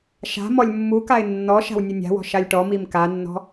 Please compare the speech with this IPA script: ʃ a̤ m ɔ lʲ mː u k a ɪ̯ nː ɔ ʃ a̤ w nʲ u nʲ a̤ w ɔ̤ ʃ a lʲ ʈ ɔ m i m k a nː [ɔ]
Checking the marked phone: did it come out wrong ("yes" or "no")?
yes